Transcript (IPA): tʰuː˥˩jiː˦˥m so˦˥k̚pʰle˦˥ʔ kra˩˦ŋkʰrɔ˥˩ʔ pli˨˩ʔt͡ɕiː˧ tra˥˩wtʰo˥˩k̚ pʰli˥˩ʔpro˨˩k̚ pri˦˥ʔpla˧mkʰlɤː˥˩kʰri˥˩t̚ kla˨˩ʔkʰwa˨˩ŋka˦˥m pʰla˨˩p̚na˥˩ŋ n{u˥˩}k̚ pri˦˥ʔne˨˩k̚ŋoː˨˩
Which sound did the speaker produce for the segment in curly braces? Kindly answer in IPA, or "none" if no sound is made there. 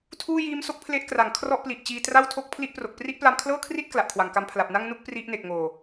u˥˩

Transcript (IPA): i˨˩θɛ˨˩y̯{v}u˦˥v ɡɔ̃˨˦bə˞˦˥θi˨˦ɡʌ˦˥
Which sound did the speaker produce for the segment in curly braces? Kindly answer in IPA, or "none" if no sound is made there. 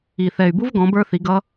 b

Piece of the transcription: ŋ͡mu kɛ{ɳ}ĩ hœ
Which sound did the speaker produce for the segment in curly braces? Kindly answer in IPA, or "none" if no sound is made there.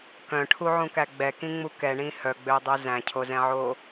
ɳ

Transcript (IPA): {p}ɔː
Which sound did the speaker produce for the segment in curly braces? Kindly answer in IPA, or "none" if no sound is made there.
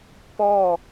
p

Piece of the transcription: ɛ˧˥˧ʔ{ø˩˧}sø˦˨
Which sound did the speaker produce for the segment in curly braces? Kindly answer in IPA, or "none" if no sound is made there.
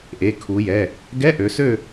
ø˩˧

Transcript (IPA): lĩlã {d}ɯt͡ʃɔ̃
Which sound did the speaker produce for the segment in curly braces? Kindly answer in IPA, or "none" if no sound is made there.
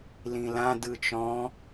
d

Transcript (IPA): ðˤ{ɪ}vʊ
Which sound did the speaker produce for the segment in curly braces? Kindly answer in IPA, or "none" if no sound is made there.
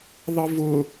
ɪ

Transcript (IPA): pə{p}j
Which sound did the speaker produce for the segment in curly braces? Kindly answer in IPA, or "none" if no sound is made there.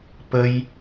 none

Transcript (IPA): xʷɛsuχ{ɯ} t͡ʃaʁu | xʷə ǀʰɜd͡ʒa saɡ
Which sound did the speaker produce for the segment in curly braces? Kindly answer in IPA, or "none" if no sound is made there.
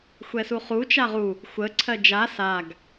u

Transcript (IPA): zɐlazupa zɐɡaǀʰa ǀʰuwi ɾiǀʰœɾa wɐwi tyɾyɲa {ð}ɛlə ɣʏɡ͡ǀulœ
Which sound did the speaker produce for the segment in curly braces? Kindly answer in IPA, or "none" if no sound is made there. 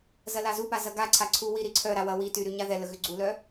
ð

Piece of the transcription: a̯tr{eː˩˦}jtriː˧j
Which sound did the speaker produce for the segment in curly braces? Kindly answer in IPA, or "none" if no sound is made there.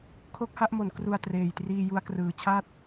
eː˨˩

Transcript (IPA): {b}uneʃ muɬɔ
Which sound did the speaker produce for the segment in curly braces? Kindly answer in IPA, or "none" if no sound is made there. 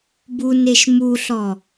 b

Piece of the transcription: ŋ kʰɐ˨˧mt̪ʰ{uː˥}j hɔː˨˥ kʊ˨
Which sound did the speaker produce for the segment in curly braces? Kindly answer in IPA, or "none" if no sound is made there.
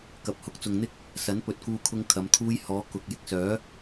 uː˥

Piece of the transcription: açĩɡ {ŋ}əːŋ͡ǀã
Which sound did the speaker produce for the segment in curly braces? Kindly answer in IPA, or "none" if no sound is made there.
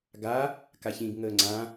ŋ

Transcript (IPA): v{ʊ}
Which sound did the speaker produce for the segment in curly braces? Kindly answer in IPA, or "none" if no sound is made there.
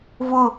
ʊ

